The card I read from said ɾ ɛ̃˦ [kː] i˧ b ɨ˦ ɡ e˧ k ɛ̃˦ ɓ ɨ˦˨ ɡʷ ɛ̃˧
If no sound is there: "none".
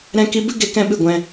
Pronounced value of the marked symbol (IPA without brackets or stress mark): k